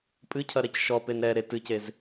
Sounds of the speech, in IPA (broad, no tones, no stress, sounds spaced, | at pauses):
pʼ ɨ cʰ ɐ ɾ ɛ c ʃ ɔ p e n ɾ ɛ ɾ e t ɨ c e z